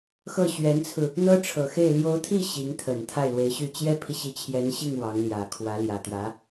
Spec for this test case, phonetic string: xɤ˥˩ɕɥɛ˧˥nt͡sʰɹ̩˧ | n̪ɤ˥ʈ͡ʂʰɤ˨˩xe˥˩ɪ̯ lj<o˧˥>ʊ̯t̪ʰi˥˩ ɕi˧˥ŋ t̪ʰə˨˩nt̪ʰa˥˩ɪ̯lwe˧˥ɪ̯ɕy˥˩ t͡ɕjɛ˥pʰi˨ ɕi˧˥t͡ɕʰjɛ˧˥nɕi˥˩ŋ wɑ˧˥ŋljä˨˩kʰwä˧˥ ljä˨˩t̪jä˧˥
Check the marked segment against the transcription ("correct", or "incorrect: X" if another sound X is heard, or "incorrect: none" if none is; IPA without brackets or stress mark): correct